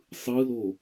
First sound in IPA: sˤ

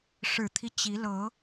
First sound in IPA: ʂ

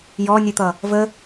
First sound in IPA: j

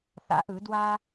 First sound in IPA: θ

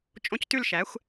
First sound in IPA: t͡ʃʼ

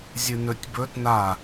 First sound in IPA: zʲ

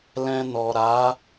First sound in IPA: l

